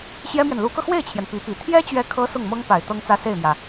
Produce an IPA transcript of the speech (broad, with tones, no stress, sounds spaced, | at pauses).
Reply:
ɕ j ɛ˥ m j ɛ˨ n l u˧˥ k ɤ˧ x w e˥˩ ɪ̯ t͡ɕʰ j ɛ˩ n p i˧˥ p i˨˩ t̪ʰ j ɛ˥ t͡ɕ ɥ ɛ˧˥ kʰ ɤ˧˥ s ʊ˥˩ ŋ m ɤ˥ ŋ p a˨˩ ɪ̯ t̪ ɤ˥ ŋ t͡s ä˥˧ s e˥˩ ɪ̯ m j ä˩